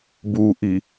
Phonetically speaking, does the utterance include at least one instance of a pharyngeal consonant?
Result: no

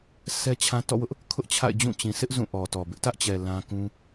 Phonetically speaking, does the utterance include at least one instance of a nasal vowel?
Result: yes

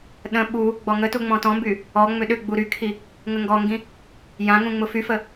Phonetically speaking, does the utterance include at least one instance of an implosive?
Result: yes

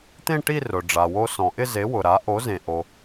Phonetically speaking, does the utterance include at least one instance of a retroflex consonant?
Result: yes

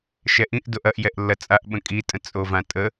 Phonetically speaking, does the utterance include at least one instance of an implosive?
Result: yes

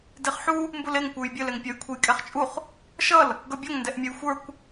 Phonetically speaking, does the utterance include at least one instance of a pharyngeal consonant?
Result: yes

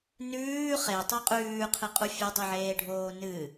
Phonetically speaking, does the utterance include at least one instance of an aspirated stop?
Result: yes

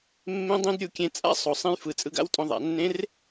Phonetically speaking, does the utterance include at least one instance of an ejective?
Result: yes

